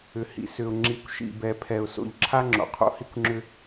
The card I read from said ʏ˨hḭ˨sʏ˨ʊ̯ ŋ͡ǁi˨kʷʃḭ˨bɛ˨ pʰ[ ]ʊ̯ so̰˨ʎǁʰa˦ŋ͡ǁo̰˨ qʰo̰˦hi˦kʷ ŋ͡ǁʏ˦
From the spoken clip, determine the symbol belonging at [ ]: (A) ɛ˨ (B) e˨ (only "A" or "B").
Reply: A